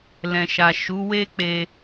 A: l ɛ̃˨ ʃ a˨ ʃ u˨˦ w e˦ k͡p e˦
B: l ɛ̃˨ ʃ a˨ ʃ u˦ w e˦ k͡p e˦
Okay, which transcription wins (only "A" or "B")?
A